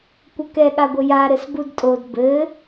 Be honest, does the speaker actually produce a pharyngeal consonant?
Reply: no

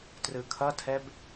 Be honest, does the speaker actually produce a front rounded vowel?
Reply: no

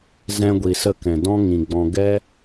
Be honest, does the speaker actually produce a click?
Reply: no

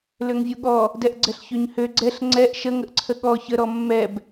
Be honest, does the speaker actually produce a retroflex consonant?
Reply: no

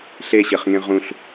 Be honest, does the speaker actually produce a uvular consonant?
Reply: yes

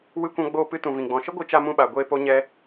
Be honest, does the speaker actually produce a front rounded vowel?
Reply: no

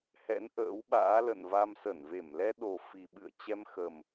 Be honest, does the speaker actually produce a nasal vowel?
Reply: no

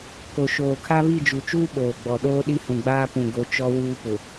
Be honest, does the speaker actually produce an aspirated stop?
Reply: yes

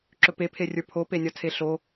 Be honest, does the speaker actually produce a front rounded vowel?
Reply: no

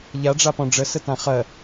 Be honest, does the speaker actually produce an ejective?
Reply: no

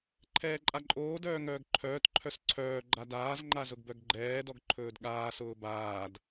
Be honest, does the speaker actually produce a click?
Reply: yes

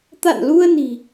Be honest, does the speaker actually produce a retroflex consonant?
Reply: no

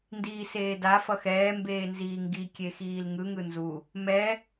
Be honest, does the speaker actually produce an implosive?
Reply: no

